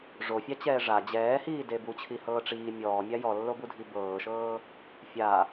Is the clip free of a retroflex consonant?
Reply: no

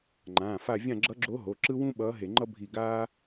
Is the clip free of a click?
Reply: no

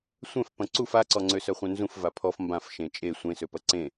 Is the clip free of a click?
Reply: no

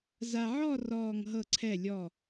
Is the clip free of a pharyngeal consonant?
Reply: no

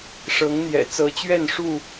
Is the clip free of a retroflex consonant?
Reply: no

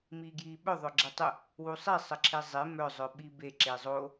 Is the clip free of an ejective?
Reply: yes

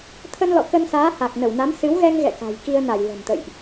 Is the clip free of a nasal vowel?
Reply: yes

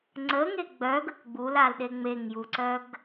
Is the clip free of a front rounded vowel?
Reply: no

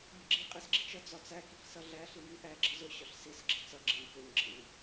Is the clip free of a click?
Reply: no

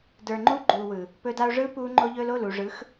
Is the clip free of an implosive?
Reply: yes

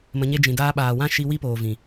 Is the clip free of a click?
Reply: yes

